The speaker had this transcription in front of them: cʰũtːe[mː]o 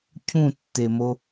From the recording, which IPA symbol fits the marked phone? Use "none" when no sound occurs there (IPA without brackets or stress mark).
m